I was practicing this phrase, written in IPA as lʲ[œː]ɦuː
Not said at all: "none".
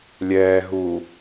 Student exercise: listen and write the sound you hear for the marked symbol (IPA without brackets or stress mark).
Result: ɛː